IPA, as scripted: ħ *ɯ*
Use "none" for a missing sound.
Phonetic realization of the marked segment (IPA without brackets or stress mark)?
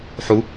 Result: u